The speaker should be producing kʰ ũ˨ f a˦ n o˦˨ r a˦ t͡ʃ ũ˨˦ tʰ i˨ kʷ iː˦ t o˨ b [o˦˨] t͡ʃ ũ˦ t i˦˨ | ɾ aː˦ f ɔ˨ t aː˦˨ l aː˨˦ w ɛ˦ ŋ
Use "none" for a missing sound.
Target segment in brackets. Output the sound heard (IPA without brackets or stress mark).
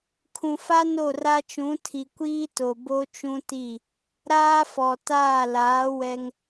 o˦